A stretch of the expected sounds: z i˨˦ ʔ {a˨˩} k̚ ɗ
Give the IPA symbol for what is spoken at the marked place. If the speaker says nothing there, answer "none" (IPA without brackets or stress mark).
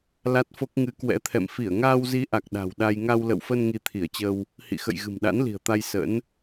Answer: a˨˩